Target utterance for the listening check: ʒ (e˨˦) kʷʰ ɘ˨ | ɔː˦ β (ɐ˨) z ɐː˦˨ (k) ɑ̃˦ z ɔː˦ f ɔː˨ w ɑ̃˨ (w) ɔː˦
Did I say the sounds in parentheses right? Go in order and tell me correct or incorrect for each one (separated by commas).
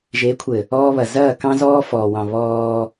correct, correct, correct, incorrect